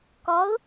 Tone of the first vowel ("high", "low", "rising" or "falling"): rising